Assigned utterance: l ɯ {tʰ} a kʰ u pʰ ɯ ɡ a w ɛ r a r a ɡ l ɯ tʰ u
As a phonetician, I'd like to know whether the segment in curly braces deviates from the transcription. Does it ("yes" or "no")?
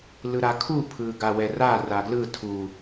yes